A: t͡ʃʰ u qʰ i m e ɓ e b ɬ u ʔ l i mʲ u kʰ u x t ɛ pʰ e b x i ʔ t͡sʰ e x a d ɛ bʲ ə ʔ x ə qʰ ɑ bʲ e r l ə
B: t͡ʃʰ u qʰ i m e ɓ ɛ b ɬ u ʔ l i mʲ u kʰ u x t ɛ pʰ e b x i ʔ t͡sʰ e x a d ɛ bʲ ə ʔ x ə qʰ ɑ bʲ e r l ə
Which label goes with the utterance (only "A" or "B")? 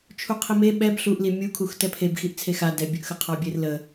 B